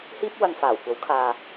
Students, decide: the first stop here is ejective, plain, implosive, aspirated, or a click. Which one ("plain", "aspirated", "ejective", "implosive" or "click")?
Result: plain